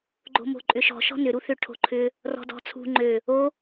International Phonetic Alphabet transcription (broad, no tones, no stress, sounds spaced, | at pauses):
ɡ͡ǃ o̤ m o̤ ǃʼ ʏ ʃ ɔ̤ ʃ ɔ̤ n ʏ ɾ u θ ʏ ʈʰ o̤ ǃʰ ʏ | r ɔ̤ d ɔ̤ t͡sʰ ṳ ŋ͡ǃ ø | o